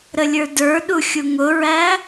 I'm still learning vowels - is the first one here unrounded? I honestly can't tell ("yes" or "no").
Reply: yes